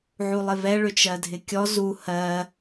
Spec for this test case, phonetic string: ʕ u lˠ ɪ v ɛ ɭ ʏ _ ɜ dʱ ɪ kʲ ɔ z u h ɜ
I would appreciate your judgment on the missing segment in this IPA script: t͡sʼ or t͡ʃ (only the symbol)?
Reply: t͡ʃ